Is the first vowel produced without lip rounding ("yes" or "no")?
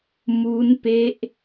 no